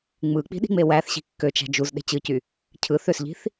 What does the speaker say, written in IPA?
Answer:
ŋ͡mɯk͡pi̤ɗi̤ŋ͡me wæθɕi̤ kːøt͡ʃæ̤ d͡ʒuzɗe̤ t͡ɕɯcy | cʰɯ θøsʎi̤θ

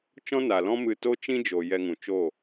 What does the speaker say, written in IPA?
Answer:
t͡ʃɔ̃˦na˨lɔ̃˦mɨ˧ to˦t͡ʃĩ˦d͡ʒo˨ jɛ˧ŋũ˨t͡ʃo˦˨

